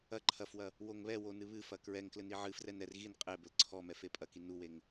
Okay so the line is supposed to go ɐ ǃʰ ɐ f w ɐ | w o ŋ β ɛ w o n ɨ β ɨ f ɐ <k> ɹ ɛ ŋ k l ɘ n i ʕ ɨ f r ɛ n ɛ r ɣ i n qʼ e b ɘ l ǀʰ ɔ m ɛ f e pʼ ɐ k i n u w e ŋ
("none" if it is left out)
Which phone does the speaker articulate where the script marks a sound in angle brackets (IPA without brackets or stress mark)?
k